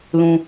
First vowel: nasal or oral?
nasal